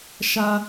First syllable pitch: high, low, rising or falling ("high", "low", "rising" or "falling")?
high